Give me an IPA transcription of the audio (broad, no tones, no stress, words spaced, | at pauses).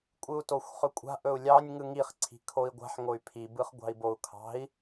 kʷʼɯu̯toxʷχɵkʷʼa̤ ʔɵu̯lʲɑnʲ ŋɯŋiχ ǀʰi̤kʰoi̯ɡʷa̤ħ ŋoy̯pʰi bɯχɡʷɑ̤i̯bou̯kʰɑ̤i̯